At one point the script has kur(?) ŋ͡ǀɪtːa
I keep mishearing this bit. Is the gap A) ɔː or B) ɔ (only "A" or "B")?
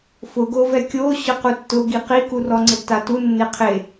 B